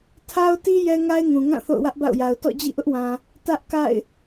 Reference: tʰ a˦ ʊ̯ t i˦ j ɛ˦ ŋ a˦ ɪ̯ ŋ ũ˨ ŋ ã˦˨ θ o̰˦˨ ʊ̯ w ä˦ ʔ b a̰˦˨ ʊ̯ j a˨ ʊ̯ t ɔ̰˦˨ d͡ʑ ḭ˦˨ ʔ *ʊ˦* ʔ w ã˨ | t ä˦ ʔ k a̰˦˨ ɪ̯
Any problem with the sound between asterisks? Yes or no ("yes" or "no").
no